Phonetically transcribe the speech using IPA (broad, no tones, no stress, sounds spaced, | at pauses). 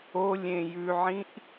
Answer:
o lʲ ẽ j ʉ ʕ ĩ ʔ